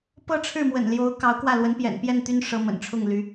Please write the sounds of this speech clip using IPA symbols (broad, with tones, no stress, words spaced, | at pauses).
pɤ˥˧ʈ͡ʂʰɻ̩˥˩mwə̰˨˩nljo˧˥ʊ̯ kɑ˧˥ʊ̯kwä˥˩lwə˧˥n pjɛ̰˨˩npjɛ˥˩nt̪y˥n ʂɤ˧˥mə̰˨˩nʈ͡ʂʰʊ˥˩ŋ ly˥